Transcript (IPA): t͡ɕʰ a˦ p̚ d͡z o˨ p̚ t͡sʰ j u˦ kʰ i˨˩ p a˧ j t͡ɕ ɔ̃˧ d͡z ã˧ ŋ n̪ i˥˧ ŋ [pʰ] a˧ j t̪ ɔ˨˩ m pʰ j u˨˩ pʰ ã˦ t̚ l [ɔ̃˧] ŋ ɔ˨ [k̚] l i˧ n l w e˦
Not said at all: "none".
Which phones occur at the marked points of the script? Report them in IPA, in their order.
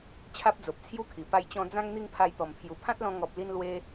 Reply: pʰ, ɔ̃˧, p̚

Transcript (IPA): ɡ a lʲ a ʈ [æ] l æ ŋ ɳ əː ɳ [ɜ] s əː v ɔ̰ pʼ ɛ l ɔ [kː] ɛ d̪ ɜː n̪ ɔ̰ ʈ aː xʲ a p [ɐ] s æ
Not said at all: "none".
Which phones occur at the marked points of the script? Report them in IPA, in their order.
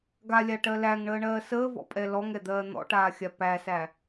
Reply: ɜ, ɜː, ŋ, æ

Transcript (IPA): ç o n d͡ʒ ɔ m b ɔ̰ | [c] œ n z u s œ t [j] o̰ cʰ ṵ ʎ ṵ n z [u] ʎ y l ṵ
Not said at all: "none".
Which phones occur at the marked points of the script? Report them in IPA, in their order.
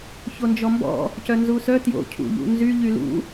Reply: c, j, y

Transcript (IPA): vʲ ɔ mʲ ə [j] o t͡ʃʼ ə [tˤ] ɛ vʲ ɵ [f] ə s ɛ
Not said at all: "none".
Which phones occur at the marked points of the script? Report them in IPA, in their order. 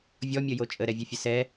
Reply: j, ɾ, fʲ

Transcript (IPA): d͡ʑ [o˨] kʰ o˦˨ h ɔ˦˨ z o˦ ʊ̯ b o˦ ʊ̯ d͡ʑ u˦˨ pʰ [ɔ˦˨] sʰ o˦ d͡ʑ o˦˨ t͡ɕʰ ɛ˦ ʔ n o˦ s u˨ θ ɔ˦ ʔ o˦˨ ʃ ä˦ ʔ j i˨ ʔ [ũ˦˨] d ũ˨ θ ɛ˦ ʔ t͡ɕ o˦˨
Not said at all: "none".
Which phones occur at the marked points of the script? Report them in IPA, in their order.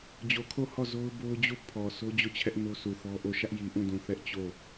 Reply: o˨, ɔ˨, ũ˦˨

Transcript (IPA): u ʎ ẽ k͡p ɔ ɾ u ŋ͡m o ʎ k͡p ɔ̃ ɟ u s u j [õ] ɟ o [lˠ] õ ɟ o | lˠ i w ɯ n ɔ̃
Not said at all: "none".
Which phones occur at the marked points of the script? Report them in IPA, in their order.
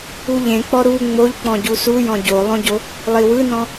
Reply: ɔ̃, lˠ

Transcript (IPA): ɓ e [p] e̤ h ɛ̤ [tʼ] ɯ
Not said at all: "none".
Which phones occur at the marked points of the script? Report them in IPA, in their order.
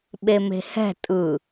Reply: m, tʼ

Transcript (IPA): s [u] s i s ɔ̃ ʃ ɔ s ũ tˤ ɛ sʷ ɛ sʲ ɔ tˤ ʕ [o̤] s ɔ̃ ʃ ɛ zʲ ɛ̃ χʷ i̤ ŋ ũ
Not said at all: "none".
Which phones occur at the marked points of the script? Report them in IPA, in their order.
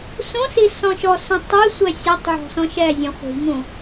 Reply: ũ, ɔ̤

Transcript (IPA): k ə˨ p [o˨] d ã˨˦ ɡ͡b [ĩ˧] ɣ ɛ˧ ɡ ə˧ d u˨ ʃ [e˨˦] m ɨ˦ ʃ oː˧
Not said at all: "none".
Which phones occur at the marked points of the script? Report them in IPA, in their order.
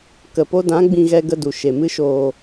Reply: o˧, ĩ˧, e˨

